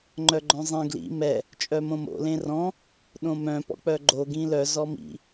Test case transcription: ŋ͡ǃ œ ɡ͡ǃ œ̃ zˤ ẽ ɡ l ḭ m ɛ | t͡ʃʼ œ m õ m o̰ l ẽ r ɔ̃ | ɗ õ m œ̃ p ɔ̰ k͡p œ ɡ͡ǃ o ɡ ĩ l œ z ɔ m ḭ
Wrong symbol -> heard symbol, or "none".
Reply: none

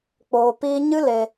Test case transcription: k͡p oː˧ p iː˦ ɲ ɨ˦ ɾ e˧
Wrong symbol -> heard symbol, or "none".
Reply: ɾ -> l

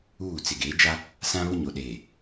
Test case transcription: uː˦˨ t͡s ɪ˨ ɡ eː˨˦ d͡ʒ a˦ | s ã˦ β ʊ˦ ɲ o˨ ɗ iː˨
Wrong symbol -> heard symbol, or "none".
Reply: iː˨ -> eː˨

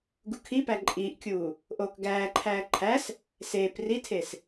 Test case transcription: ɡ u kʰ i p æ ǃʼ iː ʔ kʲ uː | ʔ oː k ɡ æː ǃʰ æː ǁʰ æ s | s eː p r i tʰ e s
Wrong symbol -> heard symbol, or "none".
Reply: ǁʰ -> ǃʰ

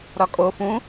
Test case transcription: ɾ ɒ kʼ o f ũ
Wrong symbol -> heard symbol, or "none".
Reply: none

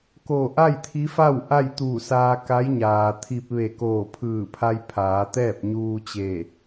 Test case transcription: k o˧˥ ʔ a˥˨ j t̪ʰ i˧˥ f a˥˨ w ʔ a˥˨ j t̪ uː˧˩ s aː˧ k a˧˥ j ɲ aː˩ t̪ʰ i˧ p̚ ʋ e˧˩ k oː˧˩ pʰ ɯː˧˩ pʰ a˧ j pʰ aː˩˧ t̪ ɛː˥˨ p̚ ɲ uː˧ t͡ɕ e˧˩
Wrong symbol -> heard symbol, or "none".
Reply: o˧˥ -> o˧˩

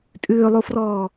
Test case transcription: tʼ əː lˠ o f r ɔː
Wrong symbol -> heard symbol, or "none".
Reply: əː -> ʏː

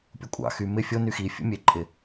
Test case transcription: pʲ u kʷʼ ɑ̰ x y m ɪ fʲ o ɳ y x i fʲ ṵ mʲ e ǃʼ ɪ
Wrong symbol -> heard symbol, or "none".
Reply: ɳ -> n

